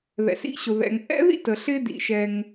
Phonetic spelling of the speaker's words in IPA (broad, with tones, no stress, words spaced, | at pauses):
ðɛ̰˩sḭ˥ɕʊ˩ ðɛ̰˩ŋʔɛ̰˥ðḭ˥t ə˩ɬɪ˥dḭ˨ʃɛ˨ŋ